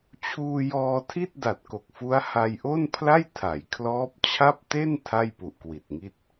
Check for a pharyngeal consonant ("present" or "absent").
absent